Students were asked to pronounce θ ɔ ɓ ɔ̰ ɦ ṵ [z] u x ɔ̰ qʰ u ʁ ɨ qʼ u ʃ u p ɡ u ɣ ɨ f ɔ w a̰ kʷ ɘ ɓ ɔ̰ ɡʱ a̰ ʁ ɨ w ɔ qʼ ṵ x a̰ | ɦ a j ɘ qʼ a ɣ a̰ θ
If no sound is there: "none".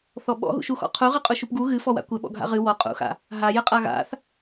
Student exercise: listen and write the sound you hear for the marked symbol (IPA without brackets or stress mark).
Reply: ʃ